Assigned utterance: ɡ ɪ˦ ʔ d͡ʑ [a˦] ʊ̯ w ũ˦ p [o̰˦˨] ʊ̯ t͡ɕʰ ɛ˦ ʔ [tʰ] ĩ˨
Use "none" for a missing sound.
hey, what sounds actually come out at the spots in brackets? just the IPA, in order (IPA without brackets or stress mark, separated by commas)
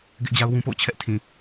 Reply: a˦, o̰˦˨, tʰ